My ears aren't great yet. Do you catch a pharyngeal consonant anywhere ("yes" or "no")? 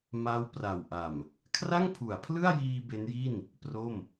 no